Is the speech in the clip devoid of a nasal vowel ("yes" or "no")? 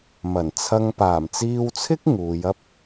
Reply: yes